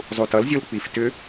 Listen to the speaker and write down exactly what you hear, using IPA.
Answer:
zˤ u t ʌ l zʲ o l k͡p i f t ʏ

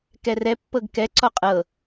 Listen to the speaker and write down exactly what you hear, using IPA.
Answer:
k ɛ r ɛ pː ɤ ɡ k ɛ ǀ ɔ qʼ ɤ

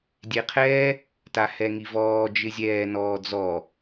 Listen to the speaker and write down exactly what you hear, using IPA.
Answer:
dʲ e qʰ ɛ | t a h ɛ ŋ i v ɔː d͡ʒ ɪ zʲ ɛː n ɔː d͡z ɔ

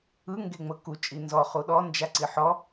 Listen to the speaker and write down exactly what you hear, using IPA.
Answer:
ɯ ŋ ɡ e ŋ͡m ɤ k u t͡ʃʼ i n z ɔ χ u ɗ ɔ n d͡ʒ a ǀ i ħ ɔ

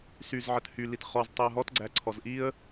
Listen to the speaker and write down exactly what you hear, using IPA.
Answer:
s y z ʕ ə t h y l i t χ ɔ z tˤ i ə̯ ɦ ɔ t ɡ͡ǀ æ ǀʰ ɔ z ʔ i ə̯

